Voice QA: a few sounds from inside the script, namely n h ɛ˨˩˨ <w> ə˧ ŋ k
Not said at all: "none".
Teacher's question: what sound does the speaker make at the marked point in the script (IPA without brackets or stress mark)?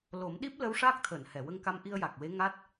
w